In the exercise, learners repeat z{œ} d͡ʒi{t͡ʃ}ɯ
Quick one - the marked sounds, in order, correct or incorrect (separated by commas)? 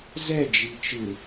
incorrect, correct